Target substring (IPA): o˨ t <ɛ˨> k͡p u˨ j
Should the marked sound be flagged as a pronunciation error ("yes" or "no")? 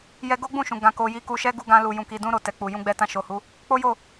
no